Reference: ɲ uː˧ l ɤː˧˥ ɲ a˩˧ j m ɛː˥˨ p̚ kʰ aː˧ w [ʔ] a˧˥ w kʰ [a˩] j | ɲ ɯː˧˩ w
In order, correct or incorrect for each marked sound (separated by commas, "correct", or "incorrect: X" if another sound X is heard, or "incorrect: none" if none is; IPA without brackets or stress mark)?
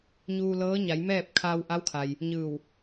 correct, correct